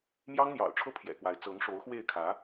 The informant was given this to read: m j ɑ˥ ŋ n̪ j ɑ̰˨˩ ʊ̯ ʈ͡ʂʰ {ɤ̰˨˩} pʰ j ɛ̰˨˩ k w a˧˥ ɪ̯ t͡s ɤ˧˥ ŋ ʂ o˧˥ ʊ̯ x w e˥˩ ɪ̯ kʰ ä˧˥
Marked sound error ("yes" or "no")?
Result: yes